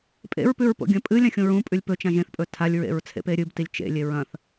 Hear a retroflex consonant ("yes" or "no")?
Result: no